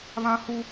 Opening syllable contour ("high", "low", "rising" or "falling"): high